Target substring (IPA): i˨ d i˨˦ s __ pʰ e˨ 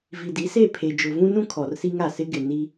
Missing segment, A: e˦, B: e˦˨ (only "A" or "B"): B